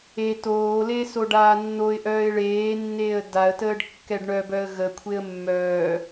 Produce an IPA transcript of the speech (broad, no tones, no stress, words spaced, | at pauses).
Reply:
e toːle soɖaːnːoɪ̯ʔœːɪ̯ ɭeːnːeːə̯ daə̯təːɖ kːɛɖɳœbœə̯ ɣəkʷʰeə̯ mːœː